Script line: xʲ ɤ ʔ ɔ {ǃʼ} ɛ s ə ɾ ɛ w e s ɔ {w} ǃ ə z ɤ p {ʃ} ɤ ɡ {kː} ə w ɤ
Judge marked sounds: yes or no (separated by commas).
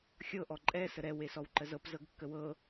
yes, yes, no, yes